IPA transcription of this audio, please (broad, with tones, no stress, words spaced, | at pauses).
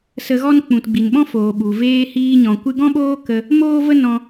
sə˧ɣɔ˦n k͡pũ˨tɡ͡bi˨nɓɔ̃˦ foː˨ɓu˨ veː˧hiː˧ɲɔ̃˨ kʷɨ˧ɡɔ̃˦ɓoː˦kə˧ | moː˦və˦ nɔ̃˧